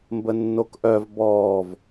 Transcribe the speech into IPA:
m b ə nː o k ʔ œ v b ɔː v

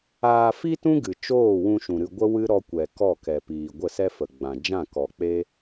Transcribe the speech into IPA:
aː˧ f i˦ t ũ˦ ɡ ɨ˨ t͡ʃ oː˦˨ w ũ˧ ʃ ũ˨ ɾ ɨ˧ ɡʷ ə˦ w ɨ˦ ɾ ɔ˧ kʷ ɛ˨ k ɔ˦˨ k ɛ˨ p iː˨ ɡʷ ə˦˨ s ɛ˦ f ə˨ ɡ͡b ã˨ d͡ʒ ã˦˨ k ɔ˨ k͡p e˦

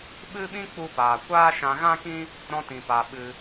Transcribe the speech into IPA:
ɓ ɨ˦ ɓ ĩ˦ k͡p u˧ p aː˨ kʷ aː˦ ʃ ã˧ ɣ ã˦ k ĩ˦ | ɾ ɔ̃˧ t ĩ˨ p a˨ ɓ ɨ˧

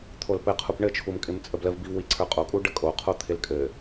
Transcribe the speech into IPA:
t̪ʰ o l p ɘ qʰ u p ɳ ɘ t͡ʃʰ u m kʼ ɪ m t͡sʼ ə b l ə v b i v w i ǀʰ ə˞ qʼ o kʼ u ɖ ə kʼ o qʰ o t̪ʰ ɪ l kʼ ɘ

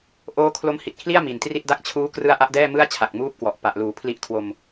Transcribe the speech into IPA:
ʔ oː˦˥ kʰ l o˦˥ m h i˨˩ t̚ kʰ l i˥˩ a̯ m i˨˩ n t r i˥˩ t̚ d a˥˩ k̚ t͡ɕʰ uː˦˥ k r ɯ˦˥ a̯ ʔ a˦˥ ʔ d ɛː˥˩ m ɯ˥˩ a̯ t͡ɕʰ a˨˩ k̚ m uː˦˥ p̚ k w ɔ˨˩ ʔ p a˨˩ ʔ l uː˩˦ pʰ l i˦˥ ʔ kʰ w o˧ m

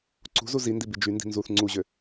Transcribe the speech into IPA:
ǀ ṳ z u z i n d i b i d͡ʒ y n d i̤ n z u θ ŋ͡ǀ u ʑ ø

